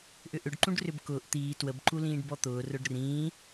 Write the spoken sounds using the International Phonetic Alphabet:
ʔ ʏ ʔ ʏ ɖ ǃ ũ ɖ r ʏ b k ʊː ʔ t̪ iː t w ə b ǃ u l ĩː ɖ b ɔ t̪ ʊː r ʊ ɖ r ĩː

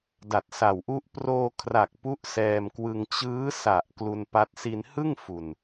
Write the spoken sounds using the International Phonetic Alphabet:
d a˨˩ t̚ s a˨˩ w ʔ u˦˥ ʔ p r oː˧ kʰ r a˨˩ k̚ p u˦˥ ʔ s ɛː˧ m k w ɯ˧ ŋ t͡ɕ ɯː˦˥ s a˨˩ ʔ k l u˧ n p a˦˥ t̚ s i˧ n h ɯ˥˩ ŋ f u˨˩ n

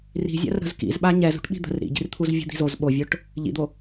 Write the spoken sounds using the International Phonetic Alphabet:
r i̤ zʲ a̰ r ɾ ə̤ z k ḭ z ɓ a ɲ ɛ z ṳ ʈ ɓ i̤ d̪ ə̤ r ɾ ḭ ɟ i̤ r t̪ʰ u z vʲ ṳ d̪ i̤ z o z ɓ o vʲ o ʈ | ʎ ḭ d̪ o

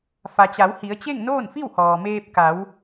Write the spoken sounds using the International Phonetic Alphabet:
f a˩ t͡ɕ a˩˧ w h i˩˧ ə̯ t͡ɕ e˥˨ ŋ n oː˥˨ n f i˥˨ w h ɔː˩ m eː˧ p̚ k a˩˧ w

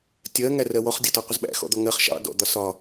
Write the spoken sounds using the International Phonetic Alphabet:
tʲ ɜ ŋ æ r ɜ w ɔ χ dʲ ɒ t ɒ qʷ ə z ɓ æ̰ x ɔ̰ d̪ ɔ ŋ ɜ χ ʃ ɑ̰ d ɔ̰ d̪ ɒ s ɒ

